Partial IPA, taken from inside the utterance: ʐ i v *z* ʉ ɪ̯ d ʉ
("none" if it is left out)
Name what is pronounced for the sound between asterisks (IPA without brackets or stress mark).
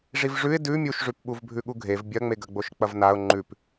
ʐ